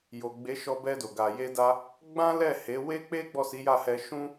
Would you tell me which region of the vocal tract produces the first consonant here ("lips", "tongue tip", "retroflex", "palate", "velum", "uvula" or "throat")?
palate